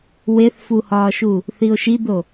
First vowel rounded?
no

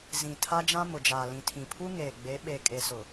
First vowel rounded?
no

